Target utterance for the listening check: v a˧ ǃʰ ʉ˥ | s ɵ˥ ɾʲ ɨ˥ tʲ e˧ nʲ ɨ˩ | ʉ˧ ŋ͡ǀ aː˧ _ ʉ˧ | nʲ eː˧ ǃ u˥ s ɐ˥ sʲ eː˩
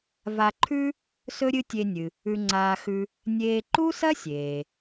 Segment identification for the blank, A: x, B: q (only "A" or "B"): A